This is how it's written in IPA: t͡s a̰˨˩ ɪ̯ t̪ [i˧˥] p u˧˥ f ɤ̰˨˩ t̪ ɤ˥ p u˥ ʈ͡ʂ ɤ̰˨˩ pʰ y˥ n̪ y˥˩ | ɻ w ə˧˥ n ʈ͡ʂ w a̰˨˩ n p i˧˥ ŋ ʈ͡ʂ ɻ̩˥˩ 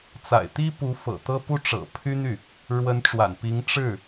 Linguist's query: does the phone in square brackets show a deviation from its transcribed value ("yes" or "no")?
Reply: yes